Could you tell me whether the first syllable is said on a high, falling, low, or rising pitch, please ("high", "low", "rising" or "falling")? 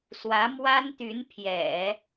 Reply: rising